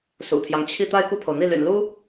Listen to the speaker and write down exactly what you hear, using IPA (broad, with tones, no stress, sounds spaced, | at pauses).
s ṵ˨˩ t̪ʰ j ɑ˦ ŋ t͡ɕʰ i˥˧ t̪ a˥˧ ɪ̯ k u˥˩ pʰ o˩ ʊ̯ n̪ i˥˩ l y̰˨˩ n l u˥